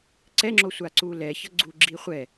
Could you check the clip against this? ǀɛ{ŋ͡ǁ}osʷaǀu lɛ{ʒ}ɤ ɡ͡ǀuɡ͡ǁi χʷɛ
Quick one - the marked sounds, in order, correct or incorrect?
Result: correct, incorrect

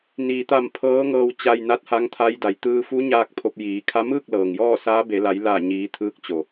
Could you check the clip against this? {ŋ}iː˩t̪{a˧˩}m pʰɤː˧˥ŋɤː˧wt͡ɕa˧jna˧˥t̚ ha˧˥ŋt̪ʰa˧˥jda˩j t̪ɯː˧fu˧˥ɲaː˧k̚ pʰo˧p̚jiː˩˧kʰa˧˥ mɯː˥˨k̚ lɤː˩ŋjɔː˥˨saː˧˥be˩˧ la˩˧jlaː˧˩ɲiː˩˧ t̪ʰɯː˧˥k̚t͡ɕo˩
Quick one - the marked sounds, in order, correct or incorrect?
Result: incorrect, correct

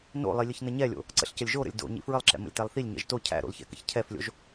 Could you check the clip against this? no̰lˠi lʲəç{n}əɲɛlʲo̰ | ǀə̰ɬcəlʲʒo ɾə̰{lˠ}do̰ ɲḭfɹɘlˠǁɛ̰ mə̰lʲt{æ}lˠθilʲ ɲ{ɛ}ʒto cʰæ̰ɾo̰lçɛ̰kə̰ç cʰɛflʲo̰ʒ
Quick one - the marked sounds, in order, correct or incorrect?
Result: correct, incorrect, correct, incorrect

